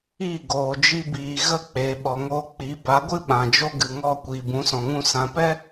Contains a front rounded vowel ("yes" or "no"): no